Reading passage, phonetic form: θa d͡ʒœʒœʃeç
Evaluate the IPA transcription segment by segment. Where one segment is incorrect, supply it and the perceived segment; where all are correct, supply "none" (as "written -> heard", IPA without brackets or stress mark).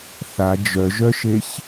none